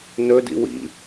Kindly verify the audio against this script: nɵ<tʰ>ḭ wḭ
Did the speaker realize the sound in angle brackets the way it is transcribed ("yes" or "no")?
no